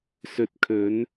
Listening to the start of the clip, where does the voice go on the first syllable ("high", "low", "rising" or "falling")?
low